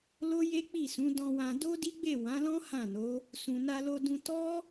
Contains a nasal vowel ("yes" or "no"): yes